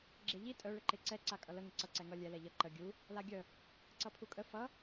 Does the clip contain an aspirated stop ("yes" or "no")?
yes